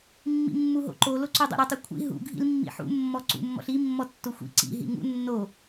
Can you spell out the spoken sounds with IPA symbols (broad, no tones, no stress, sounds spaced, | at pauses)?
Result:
mː ḭ mː u ɦ o̰ ǃ o l o ǀ u dˤ o̰ ɾ ɤ tˤ u kʷʰ ḭ ɦ ṵ ɡʱ ḭ l mː ḭ ħ ṵ mː ɔ ǀ ṵ mː ɔ̰ ɬ i mː ɔ tː o xʷ ḭ ǀ ḭ ɦ ḭ ŋ ṵ nː o